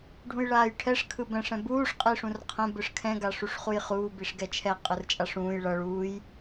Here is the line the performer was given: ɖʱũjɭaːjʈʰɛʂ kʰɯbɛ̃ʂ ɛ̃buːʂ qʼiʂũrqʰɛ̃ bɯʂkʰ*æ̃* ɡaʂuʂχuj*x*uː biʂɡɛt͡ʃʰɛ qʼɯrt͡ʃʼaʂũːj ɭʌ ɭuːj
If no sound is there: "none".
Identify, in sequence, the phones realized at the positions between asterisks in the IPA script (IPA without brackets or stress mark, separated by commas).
ɛ̃, χ